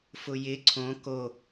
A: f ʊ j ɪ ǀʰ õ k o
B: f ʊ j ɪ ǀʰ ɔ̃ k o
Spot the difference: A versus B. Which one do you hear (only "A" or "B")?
A